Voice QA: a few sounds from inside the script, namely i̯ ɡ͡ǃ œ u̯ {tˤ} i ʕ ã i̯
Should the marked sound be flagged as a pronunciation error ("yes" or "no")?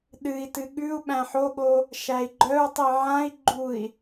no